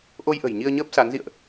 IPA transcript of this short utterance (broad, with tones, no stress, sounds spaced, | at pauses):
ʔ o˧ j ʔ ə̤˨˩ j ɲ i˧ ə̯ ɲ əː˦˥ p̚ s a˨˦ n z ḭ˧˨ ə̯ ʔ